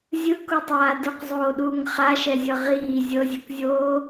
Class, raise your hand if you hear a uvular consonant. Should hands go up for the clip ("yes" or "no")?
yes